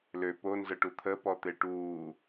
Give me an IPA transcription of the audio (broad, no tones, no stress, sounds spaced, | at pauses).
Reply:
l ø p o n z ə ʈ u t̪ʰ ə p ɔ t̪ e ʈ uː